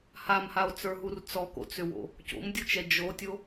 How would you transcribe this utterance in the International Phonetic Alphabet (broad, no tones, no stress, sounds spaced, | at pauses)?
h a m h a o̯ t͡s ə˞ ɦ u r t͡s ɔ k o̰ t͡s ʏ w o̰ | c o̰ m dʲ u t͡ʃ ɛ d͡ʒ o tʲ o